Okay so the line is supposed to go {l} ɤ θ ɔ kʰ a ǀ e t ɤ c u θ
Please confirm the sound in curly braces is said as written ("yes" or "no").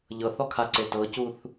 no